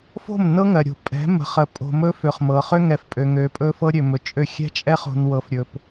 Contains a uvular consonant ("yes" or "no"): yes